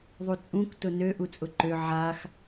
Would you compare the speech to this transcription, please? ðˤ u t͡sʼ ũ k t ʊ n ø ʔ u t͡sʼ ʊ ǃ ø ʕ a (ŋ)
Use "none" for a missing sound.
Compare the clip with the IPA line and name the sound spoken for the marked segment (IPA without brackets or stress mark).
x